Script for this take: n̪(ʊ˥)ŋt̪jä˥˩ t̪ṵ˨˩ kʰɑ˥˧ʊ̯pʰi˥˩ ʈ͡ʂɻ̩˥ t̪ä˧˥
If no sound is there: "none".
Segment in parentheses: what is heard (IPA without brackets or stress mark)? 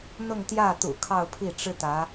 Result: ʊ˥˧